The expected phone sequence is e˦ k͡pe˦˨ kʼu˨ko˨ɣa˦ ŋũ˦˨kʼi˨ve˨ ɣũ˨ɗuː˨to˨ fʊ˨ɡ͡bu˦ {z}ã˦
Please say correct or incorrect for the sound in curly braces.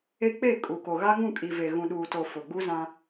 correct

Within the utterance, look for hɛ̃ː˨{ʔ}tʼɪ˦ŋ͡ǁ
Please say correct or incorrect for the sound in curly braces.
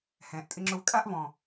correct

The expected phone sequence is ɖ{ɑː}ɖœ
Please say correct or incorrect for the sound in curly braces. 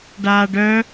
incorrect: aː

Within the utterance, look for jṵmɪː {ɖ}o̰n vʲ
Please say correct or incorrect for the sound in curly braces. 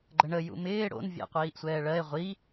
incorrect: ɽ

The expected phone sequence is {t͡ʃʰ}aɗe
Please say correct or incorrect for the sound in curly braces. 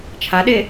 correct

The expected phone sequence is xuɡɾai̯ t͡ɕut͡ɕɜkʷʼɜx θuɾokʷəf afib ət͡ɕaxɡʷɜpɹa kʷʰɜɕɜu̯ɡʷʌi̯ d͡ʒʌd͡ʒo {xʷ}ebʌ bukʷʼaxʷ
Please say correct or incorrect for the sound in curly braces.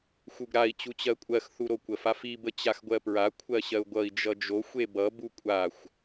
correct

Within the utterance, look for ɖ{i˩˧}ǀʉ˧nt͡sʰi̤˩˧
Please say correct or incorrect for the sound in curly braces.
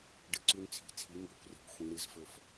incorrect: ɨ˩˧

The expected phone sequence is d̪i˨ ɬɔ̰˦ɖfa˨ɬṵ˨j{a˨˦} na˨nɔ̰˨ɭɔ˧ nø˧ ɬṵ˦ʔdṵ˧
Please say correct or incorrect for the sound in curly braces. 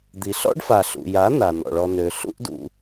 correct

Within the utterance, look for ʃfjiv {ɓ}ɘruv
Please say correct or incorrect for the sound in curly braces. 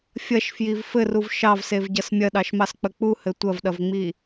incorrect: f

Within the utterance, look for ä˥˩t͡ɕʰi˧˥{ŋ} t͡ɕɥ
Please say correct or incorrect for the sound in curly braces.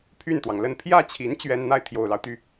incorrect: n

